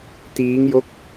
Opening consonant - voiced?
no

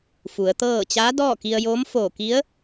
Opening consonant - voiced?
no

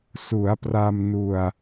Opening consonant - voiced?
no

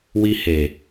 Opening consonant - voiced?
yes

